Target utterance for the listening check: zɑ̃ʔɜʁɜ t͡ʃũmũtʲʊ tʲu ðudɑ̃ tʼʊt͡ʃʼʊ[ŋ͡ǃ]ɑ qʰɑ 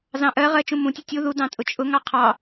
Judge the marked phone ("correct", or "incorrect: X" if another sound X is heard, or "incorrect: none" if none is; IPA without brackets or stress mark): incorrect: ŋ